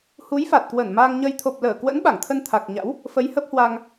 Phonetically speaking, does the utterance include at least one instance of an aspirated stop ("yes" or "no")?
yes